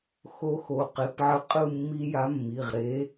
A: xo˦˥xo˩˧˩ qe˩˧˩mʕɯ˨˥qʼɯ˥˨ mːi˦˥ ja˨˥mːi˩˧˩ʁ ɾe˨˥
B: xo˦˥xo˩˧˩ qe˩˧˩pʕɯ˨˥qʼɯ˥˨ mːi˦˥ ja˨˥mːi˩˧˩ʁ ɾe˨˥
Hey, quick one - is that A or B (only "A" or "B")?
B